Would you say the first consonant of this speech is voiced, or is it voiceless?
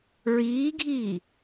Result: voiced